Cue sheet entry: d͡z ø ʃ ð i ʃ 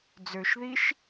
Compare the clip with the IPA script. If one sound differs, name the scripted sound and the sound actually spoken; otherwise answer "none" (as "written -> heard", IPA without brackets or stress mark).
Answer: none